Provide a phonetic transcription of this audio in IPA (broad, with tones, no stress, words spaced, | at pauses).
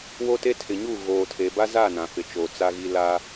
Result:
wo˦te˦ tʰɪ˨ɲu˦˨ ɣoː˨tʰe˨ba˦za˦˨ nã˨fɪ˨t͡ʃoː˨ t͡sa˦ɣi˦ la˦